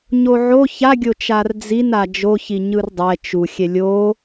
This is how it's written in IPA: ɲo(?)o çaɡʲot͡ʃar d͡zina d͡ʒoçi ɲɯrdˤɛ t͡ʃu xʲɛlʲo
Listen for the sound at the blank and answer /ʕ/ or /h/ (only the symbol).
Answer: ʕ